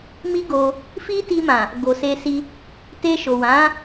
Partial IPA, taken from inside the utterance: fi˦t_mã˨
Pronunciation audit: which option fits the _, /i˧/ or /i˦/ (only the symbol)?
i˧